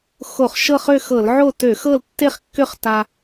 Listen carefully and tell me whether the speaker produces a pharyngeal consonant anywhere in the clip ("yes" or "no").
yes